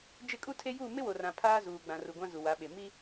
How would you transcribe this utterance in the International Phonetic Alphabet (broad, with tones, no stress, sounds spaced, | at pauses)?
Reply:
d͡ʒ ɪ˦˨ kʼ u˦ tʰ e˦ j u˦˨ m ɪ˦ w o˨ r ã˨ pʰ aː˦ z uː˨ ɡ͡b ã˨ r u˨ ɡʷ ã˦ z u˨ w a˨˦ ɓ e˨ m i˦